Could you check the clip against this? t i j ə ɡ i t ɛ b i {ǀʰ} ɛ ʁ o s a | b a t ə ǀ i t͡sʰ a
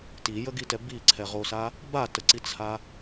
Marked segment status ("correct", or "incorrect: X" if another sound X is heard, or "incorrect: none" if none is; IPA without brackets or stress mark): correct